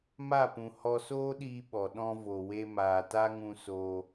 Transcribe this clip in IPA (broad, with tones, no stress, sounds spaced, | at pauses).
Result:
m a˦˨ p ũ˨ h ɔ˧ s oː˦ ɗ iː˧ ɓ ɔ˨ ɗ ɔ̃˧ v o˨ w e˧ m aː˨ t a˦ ŋ ũ˧ s oː˧